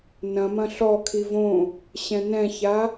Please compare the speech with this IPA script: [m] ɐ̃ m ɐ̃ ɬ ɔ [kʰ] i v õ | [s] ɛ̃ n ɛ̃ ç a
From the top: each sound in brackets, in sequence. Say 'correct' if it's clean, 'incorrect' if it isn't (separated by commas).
incorrect, correct, incorrect